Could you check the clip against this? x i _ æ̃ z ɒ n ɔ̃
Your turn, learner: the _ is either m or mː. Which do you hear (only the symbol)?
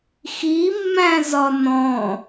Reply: mː